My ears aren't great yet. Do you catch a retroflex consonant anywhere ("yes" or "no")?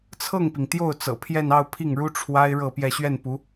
yes